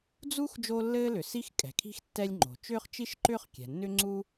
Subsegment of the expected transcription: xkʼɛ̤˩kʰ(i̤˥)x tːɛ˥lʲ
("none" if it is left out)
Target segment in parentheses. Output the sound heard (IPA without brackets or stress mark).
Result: i̤˥